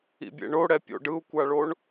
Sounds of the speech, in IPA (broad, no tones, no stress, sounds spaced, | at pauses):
ḭ bʲ ḛ ɳ o ɽ ɛ pʲ o̰ ɖ ɯ u̯ kʷ a ɭ o ɳ